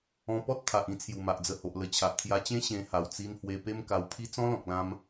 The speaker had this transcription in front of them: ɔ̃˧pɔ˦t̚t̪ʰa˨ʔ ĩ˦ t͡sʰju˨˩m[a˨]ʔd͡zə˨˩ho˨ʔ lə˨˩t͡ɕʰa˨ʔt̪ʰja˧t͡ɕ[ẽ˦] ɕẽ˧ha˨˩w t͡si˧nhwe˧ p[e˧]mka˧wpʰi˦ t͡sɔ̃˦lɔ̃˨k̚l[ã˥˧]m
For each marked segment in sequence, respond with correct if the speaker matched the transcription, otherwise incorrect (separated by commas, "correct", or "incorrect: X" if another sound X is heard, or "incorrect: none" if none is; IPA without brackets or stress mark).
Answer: correct, correct, incorrect: e˦, incorrect: ã˧